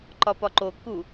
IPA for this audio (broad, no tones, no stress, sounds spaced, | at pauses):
ǃ ɒ p ɒ ǃ o k u